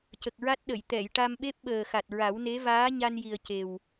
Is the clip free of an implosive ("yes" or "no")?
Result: no